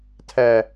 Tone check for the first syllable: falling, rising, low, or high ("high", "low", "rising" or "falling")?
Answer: low